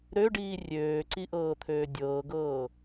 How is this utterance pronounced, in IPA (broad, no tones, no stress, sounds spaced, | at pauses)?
ɾ ø ɖ iː rʲ øː ǀ i ʔ ɤː t̪ʰ øː dʲ ɤː ɡ ɤː